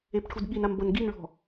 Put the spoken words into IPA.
epʈʰudɠinam bʌnɡinɭɔ̤

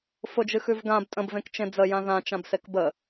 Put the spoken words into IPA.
fʊd͡ʒɨxʉv ɡãb tʼə̃bvẽkt͡ʃẽ d͡zəjã ðãt͡ʃãbsek bə

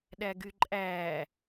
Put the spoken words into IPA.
ɗæɡyǃʼæː

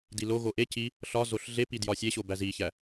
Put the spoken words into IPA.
diloɣo ʔe ci | ɬɒzoɬ ɮepi djɒsʲeɕo bæziçæ

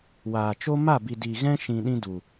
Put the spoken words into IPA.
waː˨t͡ʃo˦ ma˦˨bi˨ di˨ɣɛ̃˦ʃĩ˨ ɗĩ˦du˨

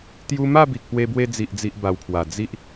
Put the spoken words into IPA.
t̪ju˧ ma˥˧bi˨k̚pwe˧bwe˧ d͡zi˨ʔd͡zi˨ʔba˨˩wpʰwa˨˩ d͡zi˦ʔ

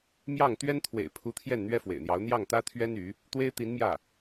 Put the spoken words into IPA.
mjɑ˥˩ŋ t̪ɥɛ˥n t̪ʰwḛ˨˩ɪ̯pʰu˧˥t̪ʰjɛ˥˩n n̪ɥɛ˥fwḛ˨˩ɪ̯n̪jɑ˧˥ʊ̯ n̪jɑ˥˩ŋt̪ä˥t̪ʰɥɛ˥n y˧˥ | t̪we˥ɪ̯t̪i˧˥nmjä˥˩

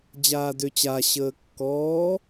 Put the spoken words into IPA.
d͡ʑaːdø t͡ɕa ɕəːkːɔː

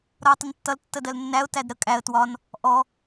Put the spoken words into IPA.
ɾʌʊ̯tˤɪntːʌl tːədɜlnːæʊ̯ tædɾə kʼæə̯ twɒn | ʔɔ

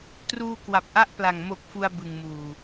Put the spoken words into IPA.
truː˧kwa˨˩p̚ʔa˦˥ʔpla˨˩ŋ mo˨˩k̚ fu˧a̯bɯ˨˩ŋmuː˨˩

